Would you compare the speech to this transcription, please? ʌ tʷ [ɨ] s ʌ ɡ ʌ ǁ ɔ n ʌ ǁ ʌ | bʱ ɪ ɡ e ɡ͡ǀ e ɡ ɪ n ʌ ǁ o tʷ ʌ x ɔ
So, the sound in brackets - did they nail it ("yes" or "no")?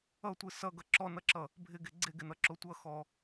yes